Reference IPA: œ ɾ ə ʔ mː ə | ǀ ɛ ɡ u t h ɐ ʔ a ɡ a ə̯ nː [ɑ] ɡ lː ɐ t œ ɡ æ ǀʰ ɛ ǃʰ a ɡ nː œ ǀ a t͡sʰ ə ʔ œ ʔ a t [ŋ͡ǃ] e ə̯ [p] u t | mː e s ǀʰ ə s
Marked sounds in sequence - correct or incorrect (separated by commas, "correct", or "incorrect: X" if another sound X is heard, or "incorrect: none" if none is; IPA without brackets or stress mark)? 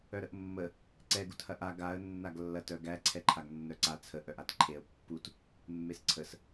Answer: incorrect: a, incorrect: ǃʰ, incorrect: pː